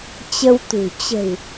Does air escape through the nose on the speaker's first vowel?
no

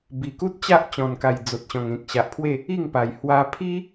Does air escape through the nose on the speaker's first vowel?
no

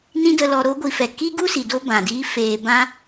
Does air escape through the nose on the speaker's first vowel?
yes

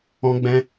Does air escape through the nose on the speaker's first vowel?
yes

